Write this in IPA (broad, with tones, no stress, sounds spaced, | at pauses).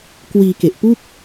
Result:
k w iː˧ k e˨˩ ʔ p u˥˩ k̚